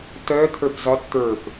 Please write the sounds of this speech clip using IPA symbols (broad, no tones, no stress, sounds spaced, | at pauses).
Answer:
t œ t̪ʰ ə˞ p z ɒ t t̪ ə˞ p